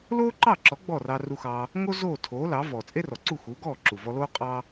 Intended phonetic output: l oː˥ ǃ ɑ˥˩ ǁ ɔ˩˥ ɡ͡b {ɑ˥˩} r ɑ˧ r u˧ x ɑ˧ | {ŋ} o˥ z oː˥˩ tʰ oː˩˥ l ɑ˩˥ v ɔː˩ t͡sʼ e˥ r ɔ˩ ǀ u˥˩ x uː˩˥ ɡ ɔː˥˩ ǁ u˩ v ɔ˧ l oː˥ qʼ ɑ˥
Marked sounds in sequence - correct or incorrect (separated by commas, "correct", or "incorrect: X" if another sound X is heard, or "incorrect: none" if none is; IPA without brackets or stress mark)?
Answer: incorrect: ɔ˥˩, correct